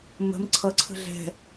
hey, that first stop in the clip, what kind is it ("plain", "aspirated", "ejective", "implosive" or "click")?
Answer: click